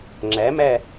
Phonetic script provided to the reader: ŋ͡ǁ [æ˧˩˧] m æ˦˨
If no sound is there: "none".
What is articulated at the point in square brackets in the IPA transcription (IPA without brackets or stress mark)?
æ˨˥